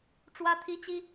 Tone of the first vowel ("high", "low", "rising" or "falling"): high